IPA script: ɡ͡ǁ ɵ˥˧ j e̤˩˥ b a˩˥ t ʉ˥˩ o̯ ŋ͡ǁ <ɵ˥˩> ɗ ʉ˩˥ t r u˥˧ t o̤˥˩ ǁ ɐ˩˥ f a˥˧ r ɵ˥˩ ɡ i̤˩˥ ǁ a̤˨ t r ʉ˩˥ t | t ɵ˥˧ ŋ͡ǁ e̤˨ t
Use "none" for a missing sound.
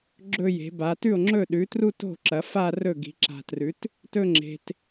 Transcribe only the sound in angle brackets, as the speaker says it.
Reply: ɵ˥˩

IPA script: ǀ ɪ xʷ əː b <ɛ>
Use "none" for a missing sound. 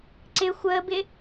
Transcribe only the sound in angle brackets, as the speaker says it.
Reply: ɪ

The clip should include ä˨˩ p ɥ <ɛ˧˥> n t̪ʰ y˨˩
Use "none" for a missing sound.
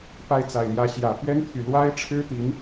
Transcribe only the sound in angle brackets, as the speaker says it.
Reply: ɛ˥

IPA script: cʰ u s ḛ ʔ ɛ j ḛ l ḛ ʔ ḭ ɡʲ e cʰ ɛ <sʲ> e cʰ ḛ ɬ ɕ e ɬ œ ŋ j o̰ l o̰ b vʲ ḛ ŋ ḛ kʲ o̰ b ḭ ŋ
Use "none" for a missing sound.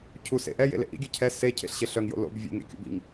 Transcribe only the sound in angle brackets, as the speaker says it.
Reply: s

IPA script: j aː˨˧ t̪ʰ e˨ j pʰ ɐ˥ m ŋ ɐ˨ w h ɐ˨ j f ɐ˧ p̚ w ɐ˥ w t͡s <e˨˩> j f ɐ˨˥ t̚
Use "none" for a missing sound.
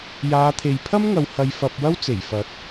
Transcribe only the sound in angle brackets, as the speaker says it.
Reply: e˨˩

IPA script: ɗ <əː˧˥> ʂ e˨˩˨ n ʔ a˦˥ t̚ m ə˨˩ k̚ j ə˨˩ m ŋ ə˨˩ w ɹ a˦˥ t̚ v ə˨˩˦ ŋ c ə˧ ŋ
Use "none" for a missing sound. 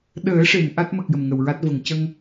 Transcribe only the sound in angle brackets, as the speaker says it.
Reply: əː˨˩˦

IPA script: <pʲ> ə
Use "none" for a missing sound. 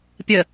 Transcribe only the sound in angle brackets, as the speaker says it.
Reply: pʲ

